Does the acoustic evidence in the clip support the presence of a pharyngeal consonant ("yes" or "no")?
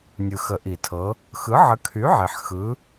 yes